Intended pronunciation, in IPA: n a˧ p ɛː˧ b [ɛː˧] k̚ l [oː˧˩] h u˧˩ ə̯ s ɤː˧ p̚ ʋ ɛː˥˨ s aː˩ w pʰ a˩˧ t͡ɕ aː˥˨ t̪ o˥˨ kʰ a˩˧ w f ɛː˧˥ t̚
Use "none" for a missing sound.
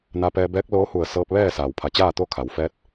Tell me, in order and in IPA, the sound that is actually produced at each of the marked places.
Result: ɛː˧˥, oː˧˥

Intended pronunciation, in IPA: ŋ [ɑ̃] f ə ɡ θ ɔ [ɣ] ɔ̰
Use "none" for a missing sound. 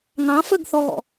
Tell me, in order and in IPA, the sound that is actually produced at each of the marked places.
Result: ɑ̃, ɣ

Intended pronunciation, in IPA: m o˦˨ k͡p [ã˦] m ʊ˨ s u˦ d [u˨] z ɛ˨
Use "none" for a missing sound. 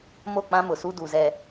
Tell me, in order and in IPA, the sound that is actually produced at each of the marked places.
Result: ã˦, u˨

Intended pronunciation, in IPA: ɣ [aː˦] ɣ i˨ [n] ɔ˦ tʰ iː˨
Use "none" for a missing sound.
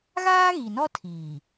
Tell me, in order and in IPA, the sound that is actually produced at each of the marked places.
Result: aː˦, n

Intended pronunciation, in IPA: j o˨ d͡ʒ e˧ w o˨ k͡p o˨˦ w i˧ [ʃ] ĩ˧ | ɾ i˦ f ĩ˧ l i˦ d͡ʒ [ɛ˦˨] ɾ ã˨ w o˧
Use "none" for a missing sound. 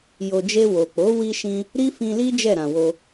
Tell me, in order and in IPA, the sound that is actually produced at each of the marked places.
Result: ʃ, ɛ˦˨

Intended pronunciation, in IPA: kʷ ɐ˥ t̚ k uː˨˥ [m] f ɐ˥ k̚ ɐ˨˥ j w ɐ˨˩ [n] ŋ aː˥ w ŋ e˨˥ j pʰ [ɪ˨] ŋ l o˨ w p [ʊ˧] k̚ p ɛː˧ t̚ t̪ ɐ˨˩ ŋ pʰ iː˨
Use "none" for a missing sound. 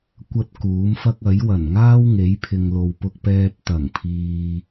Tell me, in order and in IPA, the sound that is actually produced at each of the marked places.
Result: m, n, ɪ˨, ʊ˧

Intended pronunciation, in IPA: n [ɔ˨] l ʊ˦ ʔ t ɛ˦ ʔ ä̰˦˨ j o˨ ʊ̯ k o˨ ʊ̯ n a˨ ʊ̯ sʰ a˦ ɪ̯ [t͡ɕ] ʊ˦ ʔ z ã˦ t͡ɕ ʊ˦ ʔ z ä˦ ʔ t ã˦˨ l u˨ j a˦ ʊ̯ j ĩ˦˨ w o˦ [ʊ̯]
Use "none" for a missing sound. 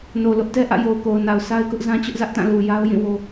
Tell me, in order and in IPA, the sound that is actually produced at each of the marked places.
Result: o˨, k, none

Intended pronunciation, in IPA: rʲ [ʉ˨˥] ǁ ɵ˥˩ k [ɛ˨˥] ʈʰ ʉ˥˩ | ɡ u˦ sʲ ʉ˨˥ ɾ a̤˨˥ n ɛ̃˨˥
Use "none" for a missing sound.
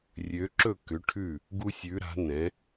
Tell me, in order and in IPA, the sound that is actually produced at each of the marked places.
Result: ø˨˥, ʏ˨˥

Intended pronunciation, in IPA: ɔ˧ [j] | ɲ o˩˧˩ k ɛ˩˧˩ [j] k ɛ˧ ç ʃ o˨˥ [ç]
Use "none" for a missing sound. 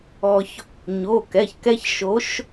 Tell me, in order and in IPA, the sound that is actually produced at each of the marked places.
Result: ç, ç, ʃ

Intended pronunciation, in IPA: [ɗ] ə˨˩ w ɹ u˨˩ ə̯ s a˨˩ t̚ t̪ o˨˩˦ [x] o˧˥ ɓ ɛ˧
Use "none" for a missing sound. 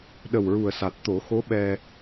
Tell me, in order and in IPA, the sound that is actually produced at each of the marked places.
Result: ɗ, x

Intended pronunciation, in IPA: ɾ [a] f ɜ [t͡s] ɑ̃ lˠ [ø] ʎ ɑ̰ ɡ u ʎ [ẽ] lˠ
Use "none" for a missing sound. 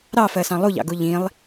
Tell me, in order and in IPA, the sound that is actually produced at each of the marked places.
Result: ɑ, s, u, ĩ

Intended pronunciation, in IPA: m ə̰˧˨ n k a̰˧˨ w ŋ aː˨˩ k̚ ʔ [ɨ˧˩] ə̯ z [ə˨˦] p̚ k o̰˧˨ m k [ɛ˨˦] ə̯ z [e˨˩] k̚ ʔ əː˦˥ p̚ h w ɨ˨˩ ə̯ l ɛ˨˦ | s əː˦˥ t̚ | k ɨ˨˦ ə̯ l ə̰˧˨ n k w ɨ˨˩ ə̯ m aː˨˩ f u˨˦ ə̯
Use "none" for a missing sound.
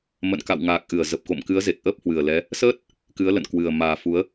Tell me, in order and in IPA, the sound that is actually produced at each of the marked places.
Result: ɨ˧˩, ə˨˩, ɨ˨˦, e˨˩

